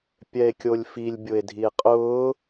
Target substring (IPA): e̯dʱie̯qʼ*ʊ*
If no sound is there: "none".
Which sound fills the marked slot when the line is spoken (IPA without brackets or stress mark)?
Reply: ʊː